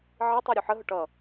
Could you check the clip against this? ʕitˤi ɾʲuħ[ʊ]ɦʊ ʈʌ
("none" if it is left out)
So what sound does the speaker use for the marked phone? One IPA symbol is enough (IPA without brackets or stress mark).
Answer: ə